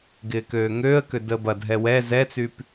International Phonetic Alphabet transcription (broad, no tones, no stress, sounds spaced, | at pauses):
ɡ ɪː k øː ŋ øː ə̯ k ø d əː b ɐ dʱ ɛ w ɛ z ɛ t͡s y p